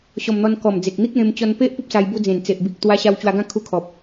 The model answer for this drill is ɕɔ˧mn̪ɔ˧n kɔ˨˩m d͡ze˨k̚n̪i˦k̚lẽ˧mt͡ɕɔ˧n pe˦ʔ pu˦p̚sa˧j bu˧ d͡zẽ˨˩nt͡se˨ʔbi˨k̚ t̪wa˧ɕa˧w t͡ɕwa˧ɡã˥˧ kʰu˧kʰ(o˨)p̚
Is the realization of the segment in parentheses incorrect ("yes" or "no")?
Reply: yes